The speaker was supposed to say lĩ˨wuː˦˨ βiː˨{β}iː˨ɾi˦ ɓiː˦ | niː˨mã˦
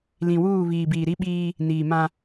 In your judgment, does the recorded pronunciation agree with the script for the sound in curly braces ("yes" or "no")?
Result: no